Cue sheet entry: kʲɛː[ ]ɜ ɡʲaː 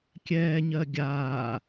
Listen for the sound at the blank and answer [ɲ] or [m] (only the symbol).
ɲ